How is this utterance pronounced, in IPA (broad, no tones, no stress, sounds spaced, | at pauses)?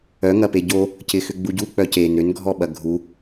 œ ŋ ɐ p e ɟ o | c ɪ x ʏ ɡ͡b u ɟ u k͡p œ c e n ɾ ʏ n ɡʱ ɔ ɓ ɐ ɡʱ u